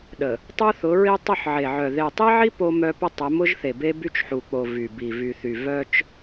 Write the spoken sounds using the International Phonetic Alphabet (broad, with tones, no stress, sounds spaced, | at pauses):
ɗ ə˨ | tˤ u˦ θ ʊ˨˦ ɹ i˦ tˤ ʊ˦˨ ħ ʕ e˨ ʕ œ˨ ð e˨ tˤ i˦ ʕ i˦ p o˦ m œ˦ p ə˦ tˤ ə˨˦ m ʊ˦ ʒ θ e˨ b e˦ b y˦ t͡ʃ ħ u˨ k͡p o˨ v y˨ b i˨ v y˨ θ y˨ v œ˦ t͡ʃ